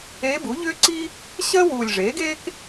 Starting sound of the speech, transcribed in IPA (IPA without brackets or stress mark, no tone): eː